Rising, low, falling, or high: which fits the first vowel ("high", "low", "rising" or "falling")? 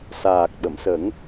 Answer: low